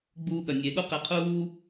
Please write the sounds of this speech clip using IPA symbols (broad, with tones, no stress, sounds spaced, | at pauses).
ɡ͡b uː˧ ɠ ɐ˨ nʲ e˨ ɠ u˦ q e˧ qʰ uː˦